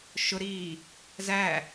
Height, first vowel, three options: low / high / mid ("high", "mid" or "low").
high